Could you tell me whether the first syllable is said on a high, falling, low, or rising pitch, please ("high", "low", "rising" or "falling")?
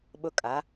high